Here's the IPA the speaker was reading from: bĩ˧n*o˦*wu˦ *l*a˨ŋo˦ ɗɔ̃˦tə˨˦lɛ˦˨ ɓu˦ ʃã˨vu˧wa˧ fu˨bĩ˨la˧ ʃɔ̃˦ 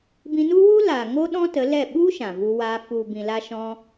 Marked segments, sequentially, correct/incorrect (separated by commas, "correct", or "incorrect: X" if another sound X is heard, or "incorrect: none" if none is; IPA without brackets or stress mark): incorrect: u˦, correct